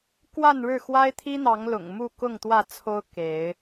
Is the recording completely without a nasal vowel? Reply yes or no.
yes